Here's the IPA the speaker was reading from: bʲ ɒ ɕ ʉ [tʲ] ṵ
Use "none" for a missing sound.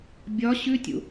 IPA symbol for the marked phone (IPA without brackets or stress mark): tʲ